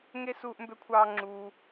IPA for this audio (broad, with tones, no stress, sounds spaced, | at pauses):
ŋ e˥ s uː˥ ʔ m b ø˥ kʷʰ ɑː˥ ŋ͡ǁ uː˧